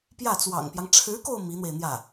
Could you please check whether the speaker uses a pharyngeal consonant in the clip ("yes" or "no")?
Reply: no